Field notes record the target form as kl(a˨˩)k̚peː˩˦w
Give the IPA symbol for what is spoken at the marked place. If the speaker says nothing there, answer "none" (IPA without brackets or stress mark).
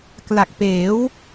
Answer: a˨˩